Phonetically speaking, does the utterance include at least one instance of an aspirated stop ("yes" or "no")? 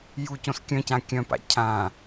yes